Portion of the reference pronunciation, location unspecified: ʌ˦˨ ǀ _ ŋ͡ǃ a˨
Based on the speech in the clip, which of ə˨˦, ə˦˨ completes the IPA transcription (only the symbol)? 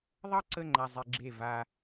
ə˦˨